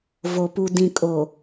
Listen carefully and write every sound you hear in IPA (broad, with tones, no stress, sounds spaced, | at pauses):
v o˨ p u˨ d ĩ˨ kʼ o˨